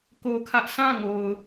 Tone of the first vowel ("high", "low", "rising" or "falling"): high